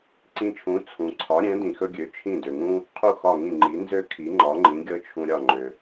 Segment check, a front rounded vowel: present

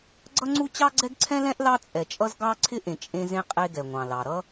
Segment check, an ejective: present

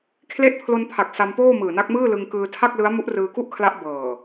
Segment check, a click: absent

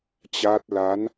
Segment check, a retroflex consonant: absent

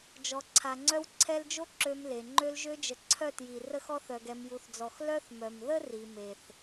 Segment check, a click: present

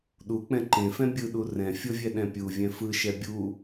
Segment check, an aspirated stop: absent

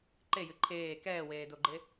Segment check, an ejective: absent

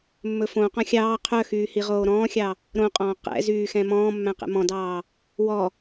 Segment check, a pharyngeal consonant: absent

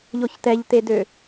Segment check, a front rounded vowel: present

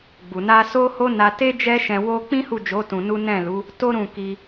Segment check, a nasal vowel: present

